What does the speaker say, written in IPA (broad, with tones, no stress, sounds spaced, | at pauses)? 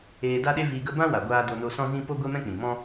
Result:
eː˧ d a˦ ɗ e˦ v iː˧ ɡ ə˦ b ã˦ w a˨ ɡʷ aː˧ d o˧ n o˧ s ɔ̃˦ z ĩ˦ p o˦ ɡʷ e˦ m ɛ̃˦ k͡p ĩ˨ m ɔ̃˦